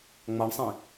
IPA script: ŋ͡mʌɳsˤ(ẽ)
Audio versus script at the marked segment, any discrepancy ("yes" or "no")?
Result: no